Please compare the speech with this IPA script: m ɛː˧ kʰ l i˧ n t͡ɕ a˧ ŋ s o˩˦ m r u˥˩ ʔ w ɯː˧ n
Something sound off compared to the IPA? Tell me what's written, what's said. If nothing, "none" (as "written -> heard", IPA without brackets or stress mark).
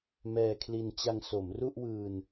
none